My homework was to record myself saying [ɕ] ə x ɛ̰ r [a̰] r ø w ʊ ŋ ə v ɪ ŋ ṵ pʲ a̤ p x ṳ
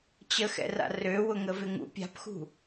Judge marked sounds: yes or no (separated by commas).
no, yes